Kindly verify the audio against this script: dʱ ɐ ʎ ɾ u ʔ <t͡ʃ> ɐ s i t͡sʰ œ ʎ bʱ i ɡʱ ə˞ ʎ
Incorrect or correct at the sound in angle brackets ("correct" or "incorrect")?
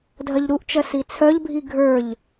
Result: correct